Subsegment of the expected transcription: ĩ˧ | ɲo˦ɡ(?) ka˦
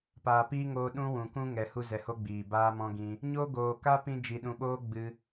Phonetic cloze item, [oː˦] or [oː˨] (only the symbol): oː˨